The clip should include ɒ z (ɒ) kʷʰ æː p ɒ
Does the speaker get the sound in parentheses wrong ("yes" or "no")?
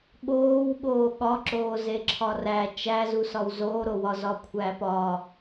no